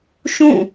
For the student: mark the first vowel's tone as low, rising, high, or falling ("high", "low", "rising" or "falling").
falling